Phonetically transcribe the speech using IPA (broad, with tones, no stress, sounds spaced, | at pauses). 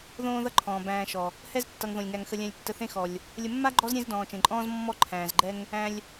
ð õː˦ ð ʌ˦ ǃʰ ɔ̃ː˩ b æ̃ː˨ ʃ ɔ˩ | h ɛ˥ z tː ʌ˨ ŋ ð õ˩ lʲ ŋ æ˨ ŋ x ə˨ lʲ æ̃˨ lʲ tː ə˨ θ ẽ˦ x ɔ˩ lʲ | lʲ ə˨ mː a˥ ɡ͡ǃ ɔ˦ z ɾʲ ẽ˦ z d ɔ̃ː˩ t͡ʃ ẽ˩ ǃʼ ɔ̃ː˦ z mː ɔ˦ ǃʰ æ̃ː˩ z ɡ͡ǃ ɛ˦ ŋ | æ̃˨ lʲ